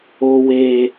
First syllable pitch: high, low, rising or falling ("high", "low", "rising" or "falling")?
low